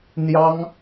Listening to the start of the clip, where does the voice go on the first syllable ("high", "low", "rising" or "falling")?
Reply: high